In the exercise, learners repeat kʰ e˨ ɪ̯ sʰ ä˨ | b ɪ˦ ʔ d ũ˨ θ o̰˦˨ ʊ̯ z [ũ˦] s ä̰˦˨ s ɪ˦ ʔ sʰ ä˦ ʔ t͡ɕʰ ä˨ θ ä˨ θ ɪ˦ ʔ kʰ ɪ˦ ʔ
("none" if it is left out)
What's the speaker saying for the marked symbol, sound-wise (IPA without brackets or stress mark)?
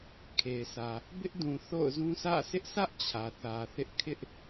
ũ˦